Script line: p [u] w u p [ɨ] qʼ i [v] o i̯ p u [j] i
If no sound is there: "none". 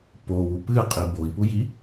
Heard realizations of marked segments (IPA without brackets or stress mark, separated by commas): o, ɨ, b, j